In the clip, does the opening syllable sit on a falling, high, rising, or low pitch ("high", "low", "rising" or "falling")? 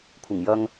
low